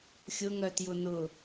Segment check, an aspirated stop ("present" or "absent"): absent